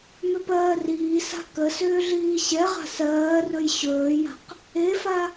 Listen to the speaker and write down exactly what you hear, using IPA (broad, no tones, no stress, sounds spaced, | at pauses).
m ʏ p ɜː r iː s a̤ k ə s ʏː ɮ iː ɕ ɛ ʁ a̤ s ɜː r ɵ j ɕ ɵː j a̤ q | e f a